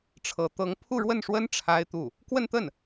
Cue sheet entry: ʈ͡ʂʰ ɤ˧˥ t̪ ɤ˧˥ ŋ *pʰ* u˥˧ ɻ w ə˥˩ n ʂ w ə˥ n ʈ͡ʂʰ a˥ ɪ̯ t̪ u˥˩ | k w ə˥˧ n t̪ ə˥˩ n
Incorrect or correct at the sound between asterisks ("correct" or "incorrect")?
correct